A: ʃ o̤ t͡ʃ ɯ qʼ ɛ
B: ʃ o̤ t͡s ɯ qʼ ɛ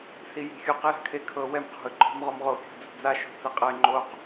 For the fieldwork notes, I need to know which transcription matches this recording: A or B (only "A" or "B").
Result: B